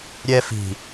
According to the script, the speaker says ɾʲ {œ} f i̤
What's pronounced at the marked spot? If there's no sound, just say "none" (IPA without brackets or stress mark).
ɛ